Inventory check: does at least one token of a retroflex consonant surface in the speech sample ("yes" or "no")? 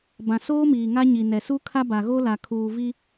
no